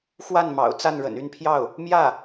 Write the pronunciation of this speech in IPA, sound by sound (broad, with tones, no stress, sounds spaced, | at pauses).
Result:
x w a˥˩ n m ɑ̰˨˩ ʊ̯ t͡s a˥˩ n ɻ ə̰˨˩ n y˥˧ n pʰ j ɑ˥˩ ʊ̯ | m j ä˥˩